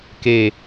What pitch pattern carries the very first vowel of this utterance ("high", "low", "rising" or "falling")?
low